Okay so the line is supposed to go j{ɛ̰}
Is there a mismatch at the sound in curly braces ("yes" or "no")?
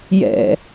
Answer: no